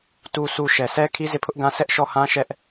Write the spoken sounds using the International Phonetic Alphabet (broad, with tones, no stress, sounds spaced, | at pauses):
t u˨ s u˨ ʃ ɛ˨ s ɛ˦ kʰ i˦ z e˦˨ pʰ ʊ˦ ʔ ɡ ã˦ sʰ ɛ˦ ʔ ʃ ɔ˦˨ h ã˦ ʃ ɛ˦ ʔ